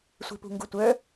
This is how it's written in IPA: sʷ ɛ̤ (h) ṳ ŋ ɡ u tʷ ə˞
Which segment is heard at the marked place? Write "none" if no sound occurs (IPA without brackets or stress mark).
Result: p